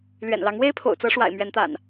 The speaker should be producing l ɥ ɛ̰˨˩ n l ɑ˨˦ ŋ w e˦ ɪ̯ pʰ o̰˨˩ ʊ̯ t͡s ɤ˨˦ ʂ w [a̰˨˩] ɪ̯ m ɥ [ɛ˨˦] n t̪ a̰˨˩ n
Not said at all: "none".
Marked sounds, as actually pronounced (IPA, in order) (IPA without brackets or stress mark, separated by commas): a̰˨˩, ɛ˨˦